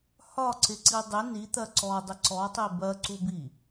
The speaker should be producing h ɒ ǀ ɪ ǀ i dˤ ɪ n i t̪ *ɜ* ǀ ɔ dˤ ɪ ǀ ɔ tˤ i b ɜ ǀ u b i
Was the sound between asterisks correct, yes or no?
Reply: yes